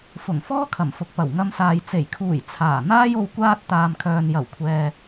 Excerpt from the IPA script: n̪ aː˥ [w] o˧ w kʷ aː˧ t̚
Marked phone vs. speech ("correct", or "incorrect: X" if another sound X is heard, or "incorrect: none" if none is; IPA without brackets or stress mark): incorrect: j